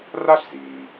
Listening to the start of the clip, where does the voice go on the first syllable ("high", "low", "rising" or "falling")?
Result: high